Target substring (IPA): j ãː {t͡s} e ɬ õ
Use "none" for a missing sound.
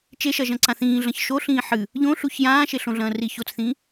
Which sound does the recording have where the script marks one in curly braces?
ʃ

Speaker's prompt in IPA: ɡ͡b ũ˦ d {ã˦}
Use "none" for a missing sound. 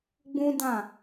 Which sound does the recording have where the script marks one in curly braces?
ã˦˨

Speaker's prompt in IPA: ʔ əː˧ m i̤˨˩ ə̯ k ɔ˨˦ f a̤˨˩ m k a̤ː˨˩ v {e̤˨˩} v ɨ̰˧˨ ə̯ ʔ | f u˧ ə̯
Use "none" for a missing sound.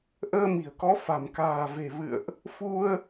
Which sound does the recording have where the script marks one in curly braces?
e̤˨˩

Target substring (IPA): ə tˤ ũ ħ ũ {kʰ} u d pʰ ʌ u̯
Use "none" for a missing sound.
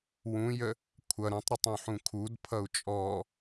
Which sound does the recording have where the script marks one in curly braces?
kʰ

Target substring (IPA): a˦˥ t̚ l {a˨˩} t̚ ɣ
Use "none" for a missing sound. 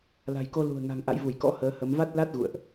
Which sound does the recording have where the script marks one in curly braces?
a˦˥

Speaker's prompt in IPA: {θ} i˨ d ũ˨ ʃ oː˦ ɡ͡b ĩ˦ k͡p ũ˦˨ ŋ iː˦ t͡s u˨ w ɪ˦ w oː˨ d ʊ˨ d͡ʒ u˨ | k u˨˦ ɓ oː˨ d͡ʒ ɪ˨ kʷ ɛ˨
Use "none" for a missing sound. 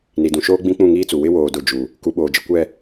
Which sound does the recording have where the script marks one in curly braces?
n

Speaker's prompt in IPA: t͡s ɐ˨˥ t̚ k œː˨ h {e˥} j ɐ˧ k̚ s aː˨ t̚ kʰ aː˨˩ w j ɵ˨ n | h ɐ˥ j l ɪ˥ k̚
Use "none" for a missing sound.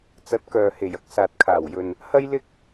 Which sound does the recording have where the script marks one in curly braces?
e˨˩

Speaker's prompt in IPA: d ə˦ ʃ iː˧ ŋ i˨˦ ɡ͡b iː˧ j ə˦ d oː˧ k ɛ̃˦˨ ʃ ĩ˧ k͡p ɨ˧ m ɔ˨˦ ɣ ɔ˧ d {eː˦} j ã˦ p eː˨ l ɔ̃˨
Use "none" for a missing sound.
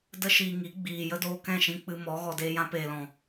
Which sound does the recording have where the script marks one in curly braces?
eː˦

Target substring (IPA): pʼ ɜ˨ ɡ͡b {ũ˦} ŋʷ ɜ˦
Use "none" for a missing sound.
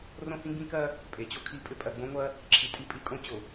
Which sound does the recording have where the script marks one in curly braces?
õ˦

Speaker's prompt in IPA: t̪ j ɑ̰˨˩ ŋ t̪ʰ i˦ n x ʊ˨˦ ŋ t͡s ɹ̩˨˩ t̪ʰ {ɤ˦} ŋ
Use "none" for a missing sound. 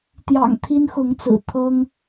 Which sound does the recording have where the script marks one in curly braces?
ɤ˦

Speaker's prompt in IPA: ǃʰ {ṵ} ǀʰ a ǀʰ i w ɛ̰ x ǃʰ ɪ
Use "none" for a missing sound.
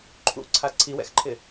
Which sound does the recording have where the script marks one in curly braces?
ṵ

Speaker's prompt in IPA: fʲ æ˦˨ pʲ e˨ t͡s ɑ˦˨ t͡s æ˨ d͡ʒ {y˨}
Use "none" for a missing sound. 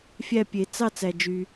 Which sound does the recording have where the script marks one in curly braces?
y˨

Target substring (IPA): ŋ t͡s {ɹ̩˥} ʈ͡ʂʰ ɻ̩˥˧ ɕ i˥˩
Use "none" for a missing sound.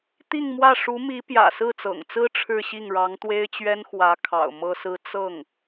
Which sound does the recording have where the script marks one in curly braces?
ɹ̩˥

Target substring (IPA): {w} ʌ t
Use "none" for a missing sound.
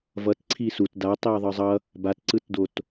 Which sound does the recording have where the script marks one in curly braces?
v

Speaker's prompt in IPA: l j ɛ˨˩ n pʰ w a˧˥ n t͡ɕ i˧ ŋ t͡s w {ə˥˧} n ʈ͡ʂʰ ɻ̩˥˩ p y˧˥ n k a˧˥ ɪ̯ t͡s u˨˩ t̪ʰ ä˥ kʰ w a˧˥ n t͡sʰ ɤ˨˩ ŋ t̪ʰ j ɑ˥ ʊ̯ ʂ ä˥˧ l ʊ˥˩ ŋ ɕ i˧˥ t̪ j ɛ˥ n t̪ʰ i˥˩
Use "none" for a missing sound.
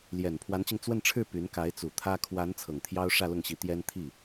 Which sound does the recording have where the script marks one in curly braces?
ə˥˧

